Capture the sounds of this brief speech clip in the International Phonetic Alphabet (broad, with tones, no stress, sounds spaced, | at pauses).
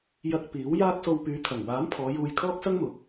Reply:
j ɐ˧ k̚ p iː˨˥ w j aː˥ k̚ s o˧ w p yː˨˧ t̪ʰ ɐ˨˩ ŋ w aː˨˥ m pʰ ɔː˨˧ j uː˧ j kʰ ɔː˥ k̚ s ɐ˥ ŋ m ʊ˨ k̚